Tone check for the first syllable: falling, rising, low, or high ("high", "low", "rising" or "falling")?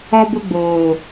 high